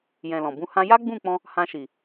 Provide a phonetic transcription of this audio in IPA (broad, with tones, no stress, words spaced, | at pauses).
jɛ̃˨ lɔ̃˨bũ˧hã˦ ja˦ɡ͡bũ˦˨k͡pɔ̃˧ | hã˧ʃi˨